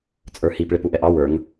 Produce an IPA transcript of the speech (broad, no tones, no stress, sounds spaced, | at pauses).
t͡sʼ ə˞ h i p ɭ ɪ p u ʔ ɛ ʔ ɑ w ə˞ ŋ